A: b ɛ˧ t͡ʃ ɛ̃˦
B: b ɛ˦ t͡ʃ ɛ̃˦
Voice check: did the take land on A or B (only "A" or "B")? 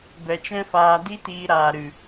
A